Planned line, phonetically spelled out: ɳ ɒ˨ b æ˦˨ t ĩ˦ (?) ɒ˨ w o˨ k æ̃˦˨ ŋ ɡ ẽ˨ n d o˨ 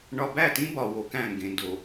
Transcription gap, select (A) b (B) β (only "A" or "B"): A